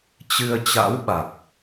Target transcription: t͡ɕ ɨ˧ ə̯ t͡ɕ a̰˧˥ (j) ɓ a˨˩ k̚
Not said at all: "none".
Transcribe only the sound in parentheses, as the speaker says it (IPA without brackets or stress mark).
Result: w